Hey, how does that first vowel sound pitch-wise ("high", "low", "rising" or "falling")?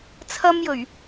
high